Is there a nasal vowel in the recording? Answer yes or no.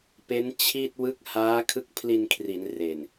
no